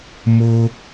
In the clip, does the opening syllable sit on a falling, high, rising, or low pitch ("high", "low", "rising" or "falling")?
high